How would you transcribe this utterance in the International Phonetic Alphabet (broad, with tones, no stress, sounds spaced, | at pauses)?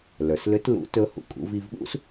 l ə˞˩ s l ʏ˧˥ t l ṵ˧˥ t ɵ˧ h ṵ˩ kʼ ṵ˧ v i˧ v ɠ ṵ˥ s